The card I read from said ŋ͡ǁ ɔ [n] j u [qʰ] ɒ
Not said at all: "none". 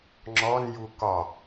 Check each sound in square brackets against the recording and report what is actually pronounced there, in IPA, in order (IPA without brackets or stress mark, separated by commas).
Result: n, k